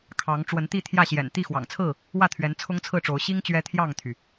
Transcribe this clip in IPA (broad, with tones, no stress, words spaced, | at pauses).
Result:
kʰɑ˨˦ŋ ʈ͡ʂwə˨˦nt̪i˥˨ t̪ʰjä˥˨ɕjɛ̰˨˩n t̪i˥˨xwɑ̰˨˩ŋt͡sʰɹ̩˥˨ | wä˥˨t̪ʰɥɛ˨˦n t͡sʰʊ˦ŋt͡sʰɹ̩˥˨ʈ͡ʂo˨˦ʊ̯ ɕi˦ŋ t͡ɕɥɛ˦t̪ʰjɑ˥˨ŋt̪ʰy˩